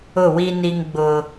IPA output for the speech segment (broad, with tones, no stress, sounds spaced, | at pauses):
ʊ˦˨ w i˦ n i˦ ŋ ɡ͡b ʊ˦